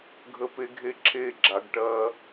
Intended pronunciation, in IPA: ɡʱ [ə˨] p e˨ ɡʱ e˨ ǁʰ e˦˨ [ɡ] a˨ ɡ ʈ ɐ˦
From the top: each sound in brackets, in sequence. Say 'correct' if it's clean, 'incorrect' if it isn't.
correct, incorrect

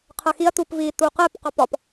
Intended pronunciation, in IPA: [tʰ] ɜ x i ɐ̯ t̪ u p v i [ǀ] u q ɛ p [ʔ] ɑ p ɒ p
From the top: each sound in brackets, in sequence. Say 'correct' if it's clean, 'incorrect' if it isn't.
incorrect, incorrect, incorrect

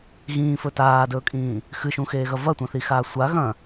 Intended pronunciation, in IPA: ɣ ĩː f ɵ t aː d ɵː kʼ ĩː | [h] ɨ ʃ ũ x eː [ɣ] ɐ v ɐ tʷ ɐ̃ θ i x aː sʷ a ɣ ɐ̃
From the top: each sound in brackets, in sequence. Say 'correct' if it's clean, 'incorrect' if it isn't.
incorrect, correct

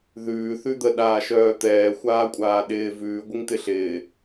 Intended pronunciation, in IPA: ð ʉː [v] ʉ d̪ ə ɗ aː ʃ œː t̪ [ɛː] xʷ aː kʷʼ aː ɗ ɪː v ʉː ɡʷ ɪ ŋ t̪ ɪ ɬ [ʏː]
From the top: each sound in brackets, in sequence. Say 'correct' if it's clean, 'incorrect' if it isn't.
incorrect, correct, incorrect

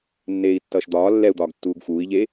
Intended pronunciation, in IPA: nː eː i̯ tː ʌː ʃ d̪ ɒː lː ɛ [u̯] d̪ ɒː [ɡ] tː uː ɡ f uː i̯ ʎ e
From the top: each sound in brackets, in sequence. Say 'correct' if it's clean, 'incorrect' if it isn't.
correct, correct

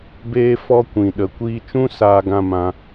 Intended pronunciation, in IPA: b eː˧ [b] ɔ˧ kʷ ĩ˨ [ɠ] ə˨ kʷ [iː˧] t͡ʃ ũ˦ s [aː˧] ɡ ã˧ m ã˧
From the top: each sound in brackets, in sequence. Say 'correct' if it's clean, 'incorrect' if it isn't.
incorrect, incorrect, correct, correct

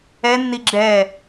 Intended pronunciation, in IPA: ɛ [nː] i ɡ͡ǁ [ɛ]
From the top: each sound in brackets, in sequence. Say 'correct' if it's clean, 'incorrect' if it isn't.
correct, correct

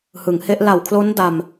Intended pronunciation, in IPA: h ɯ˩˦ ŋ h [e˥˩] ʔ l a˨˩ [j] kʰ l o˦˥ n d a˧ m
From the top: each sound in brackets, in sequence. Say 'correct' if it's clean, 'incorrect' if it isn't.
incorrect, incorrect

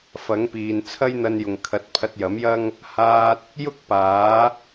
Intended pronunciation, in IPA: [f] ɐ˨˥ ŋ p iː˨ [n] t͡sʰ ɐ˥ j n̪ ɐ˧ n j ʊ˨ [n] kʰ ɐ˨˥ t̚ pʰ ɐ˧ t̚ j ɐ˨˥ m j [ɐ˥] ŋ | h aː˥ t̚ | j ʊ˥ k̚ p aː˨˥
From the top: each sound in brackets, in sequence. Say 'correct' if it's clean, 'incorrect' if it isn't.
correct, correct, incorrect, correct

